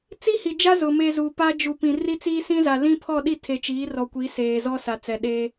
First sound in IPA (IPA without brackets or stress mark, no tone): t͡s